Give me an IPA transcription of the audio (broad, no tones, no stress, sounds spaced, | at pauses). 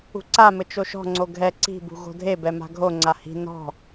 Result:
ṳ ǀ a m ɘ t͡ʃ o ʃ ɔ̤ ŋ͡ǀ o ɡʱ ɛ ǀ i̤ b ṳ ɣ o̤ dʱ e b ɛ m a̤ ɡʱ o ŋ͡ǀ a h i̤ n ɔ̤